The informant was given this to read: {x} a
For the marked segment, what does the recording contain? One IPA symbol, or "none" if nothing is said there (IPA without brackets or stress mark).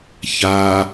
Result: ç